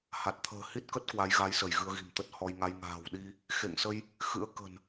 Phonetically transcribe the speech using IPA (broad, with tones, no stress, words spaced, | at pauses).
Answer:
ha˨˩t̚t̪ʰə̤ː˨˩ hi˦˥t̚kə˦˥t̚ kwa˨˦jɣa˨˦jsə˧˩j ɣɨ˧ə̯ɣi̤˨˩mt̪ə˦˥t̚ hɔ˧jŋa˧j ŋa̤ː˨˩wɗi˧ | xḛ˧˨ŋsə˧j | xɨ̰˧˥ə̯kə̤˨˩n